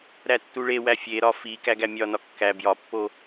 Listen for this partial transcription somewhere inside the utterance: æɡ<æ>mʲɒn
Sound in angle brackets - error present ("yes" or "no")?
no